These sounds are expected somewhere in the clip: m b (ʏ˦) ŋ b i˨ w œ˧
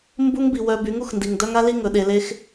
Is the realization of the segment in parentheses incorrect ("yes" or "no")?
yes